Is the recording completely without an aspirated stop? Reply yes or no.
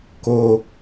yes